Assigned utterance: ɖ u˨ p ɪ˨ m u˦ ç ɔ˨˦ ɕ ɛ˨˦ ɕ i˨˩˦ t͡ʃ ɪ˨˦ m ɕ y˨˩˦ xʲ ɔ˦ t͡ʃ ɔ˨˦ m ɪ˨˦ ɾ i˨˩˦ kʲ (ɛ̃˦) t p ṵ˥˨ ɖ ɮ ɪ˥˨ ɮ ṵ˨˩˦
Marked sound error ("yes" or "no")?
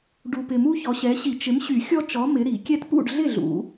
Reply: yes